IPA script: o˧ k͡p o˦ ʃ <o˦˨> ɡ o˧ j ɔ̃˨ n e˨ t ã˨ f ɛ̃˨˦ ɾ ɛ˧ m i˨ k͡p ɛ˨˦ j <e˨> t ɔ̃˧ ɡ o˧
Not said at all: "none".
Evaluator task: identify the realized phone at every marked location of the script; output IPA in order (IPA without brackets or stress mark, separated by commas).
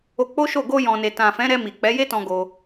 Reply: o˦˨, e˦